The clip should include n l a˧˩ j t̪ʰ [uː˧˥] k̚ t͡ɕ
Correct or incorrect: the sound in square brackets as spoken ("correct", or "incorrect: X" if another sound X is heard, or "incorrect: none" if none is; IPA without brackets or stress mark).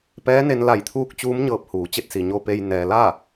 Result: correct